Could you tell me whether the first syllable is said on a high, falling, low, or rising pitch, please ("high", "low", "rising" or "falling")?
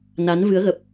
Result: rising